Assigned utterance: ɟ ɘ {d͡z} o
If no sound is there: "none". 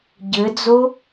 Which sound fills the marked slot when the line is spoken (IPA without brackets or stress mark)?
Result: d͡z